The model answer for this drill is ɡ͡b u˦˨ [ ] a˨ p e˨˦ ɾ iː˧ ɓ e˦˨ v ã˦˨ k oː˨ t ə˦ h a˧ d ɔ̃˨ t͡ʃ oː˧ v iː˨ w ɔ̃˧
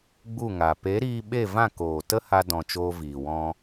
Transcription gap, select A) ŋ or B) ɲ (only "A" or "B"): A